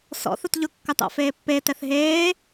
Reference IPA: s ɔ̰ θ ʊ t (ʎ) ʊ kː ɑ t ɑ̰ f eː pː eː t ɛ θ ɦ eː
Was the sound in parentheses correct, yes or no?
yes